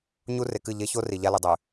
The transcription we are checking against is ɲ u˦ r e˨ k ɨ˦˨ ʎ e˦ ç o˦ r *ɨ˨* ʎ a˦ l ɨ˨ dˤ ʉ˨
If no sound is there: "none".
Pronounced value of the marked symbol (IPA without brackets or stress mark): i˨